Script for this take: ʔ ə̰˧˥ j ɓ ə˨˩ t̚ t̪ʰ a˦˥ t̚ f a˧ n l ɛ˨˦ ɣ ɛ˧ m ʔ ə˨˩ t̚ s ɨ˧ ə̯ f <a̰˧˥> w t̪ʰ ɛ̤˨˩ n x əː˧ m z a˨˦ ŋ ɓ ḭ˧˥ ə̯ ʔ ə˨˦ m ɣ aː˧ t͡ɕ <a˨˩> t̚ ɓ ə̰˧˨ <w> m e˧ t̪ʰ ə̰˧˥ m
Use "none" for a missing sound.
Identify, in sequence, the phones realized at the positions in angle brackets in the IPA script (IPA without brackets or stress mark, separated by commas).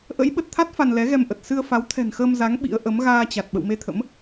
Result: a˨˦, a˨˩, w